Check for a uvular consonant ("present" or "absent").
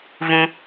absent